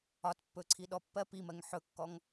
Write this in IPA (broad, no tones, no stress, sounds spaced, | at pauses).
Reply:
ɒ t pː ɵ ǀʰ i ɗ ɔ pː ɜ p i m ɜ ŋ ħ ɵ kː ɔ ŋ